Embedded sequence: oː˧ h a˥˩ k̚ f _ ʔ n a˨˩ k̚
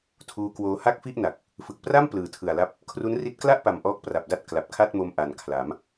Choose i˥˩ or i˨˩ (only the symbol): i˥˩